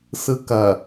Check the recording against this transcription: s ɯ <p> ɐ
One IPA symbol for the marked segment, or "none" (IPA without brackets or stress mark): k